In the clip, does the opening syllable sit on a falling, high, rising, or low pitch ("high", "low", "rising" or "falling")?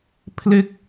falling